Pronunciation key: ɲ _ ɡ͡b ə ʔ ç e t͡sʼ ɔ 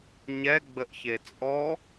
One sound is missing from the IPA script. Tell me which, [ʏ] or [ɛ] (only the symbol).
ɛ